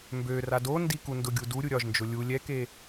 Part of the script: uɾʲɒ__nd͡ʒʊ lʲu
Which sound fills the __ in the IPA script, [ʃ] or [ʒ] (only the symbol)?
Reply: ʒ